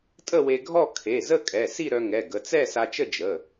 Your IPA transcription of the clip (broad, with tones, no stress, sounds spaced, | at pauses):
tʼ ə˥˧ w e˧ ɡʱ ɔ˥˧ kʰ e˩˧˩ z ə˥˧ kʼ ɛ˩˧˩ s i˥˧ ɾ œ˧ ŋ ɛ˩˧˩ ɡ ə˩˧˩ t͡s ɛ˥˧ s a˧ t͡ʃ ə˥˧ d͡ʒ ə˩˧˩